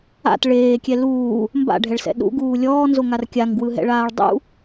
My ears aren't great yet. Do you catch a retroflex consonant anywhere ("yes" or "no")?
yes